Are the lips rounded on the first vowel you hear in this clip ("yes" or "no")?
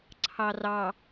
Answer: no